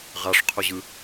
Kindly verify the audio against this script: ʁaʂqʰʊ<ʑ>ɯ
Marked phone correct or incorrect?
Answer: correct